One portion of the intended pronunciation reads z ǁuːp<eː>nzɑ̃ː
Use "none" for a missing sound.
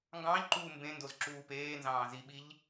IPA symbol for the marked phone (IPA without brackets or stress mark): eː